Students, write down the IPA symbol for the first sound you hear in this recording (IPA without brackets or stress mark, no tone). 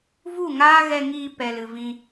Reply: v